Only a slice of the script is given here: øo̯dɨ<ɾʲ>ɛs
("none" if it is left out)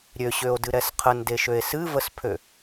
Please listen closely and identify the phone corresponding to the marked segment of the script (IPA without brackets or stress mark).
ɾ